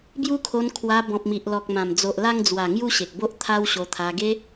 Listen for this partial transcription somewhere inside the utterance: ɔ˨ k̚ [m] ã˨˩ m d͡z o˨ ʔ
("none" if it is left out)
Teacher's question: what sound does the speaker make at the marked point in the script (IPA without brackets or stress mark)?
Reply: m